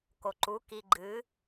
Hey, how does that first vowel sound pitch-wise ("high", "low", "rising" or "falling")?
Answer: low